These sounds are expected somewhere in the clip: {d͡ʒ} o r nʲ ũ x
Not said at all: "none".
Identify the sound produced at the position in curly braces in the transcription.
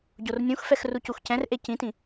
ɟ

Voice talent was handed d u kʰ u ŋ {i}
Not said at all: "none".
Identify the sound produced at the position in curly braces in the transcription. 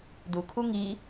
i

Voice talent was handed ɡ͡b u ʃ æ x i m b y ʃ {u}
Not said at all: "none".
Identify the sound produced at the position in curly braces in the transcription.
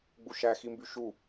u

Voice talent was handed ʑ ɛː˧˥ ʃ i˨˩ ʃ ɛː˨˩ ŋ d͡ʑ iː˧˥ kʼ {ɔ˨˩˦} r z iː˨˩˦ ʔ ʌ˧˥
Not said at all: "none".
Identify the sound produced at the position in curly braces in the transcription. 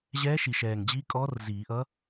ɔ˧˥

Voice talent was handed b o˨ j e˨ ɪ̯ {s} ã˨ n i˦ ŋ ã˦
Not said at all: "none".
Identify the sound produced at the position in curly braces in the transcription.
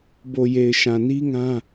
ʃ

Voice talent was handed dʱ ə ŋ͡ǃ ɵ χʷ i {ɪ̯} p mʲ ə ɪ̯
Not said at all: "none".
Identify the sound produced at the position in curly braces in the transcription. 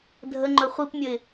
none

